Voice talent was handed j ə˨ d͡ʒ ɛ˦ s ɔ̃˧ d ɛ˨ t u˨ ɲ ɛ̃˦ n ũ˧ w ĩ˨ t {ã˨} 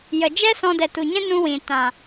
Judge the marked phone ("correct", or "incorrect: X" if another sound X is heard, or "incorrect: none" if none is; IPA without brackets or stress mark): correct